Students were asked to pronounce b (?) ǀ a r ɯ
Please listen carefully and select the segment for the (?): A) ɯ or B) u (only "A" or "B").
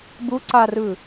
B